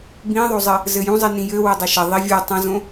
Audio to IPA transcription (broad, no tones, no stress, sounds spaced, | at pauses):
b ĩ ðˤ o zˤ ɘ | z ɘ j ũ zˤ i n ĩ j ɘ w ɘ dˤ ɘ ʃ ɐ ðˤ i vʲ o tˤ ɐ̃ z õ